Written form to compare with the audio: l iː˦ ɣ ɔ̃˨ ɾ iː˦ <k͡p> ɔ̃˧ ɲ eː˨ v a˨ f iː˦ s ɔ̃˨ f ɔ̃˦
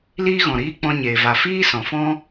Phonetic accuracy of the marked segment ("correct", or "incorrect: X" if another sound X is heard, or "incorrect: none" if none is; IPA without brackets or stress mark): correct